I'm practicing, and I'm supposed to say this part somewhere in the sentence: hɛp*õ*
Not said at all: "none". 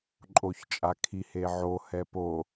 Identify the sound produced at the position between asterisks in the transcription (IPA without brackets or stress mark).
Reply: o